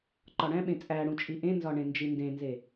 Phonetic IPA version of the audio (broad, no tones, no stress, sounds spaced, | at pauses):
ǃ ɒ ɽ æ̃ ɓ ẽ t͡sʼ æ ɽ ũ t͡ʃʼ i ʔ ẽ n z ɒ ɳ ẽ n d͡ʒ i n d ẽ n z e